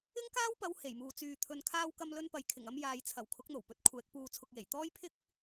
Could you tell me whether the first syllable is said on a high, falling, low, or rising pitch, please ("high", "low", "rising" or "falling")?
high